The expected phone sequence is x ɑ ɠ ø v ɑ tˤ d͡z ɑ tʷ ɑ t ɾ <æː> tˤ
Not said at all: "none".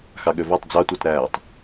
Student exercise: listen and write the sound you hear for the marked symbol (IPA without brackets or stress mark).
æː